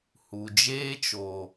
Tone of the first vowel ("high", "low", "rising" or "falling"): low